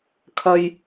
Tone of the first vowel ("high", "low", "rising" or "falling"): low